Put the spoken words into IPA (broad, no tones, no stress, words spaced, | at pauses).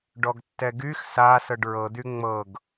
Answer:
ɖɔɡtːɛɡyx sa sɤɖɹɤ d̪yŋ͡mɤɡ